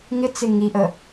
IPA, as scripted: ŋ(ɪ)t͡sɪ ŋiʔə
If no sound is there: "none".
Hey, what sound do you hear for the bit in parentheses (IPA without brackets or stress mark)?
ɪ